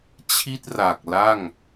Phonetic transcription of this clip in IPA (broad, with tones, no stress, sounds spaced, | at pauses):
t͡ɕʰ i˥˩ t̚ r a˨˩ k̚ l a˥˩ ŋ